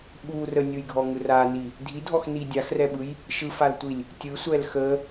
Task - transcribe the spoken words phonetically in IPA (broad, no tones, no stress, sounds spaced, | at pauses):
ɓ u r ə nʲ ɯ j ɡʱ ɔ ŋ ɯ r a n i | dʱ i dʱ ɔ x n i dʲ a x r ɛ ɓ ɯ j | ʃ ɯ f a l tʷ i lʲ | tʲ ɯ sʷ ɛ l x ə